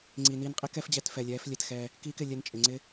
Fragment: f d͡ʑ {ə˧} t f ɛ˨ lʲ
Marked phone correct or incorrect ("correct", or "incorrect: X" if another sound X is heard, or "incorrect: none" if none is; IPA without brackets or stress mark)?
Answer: incorrect: ɛ˧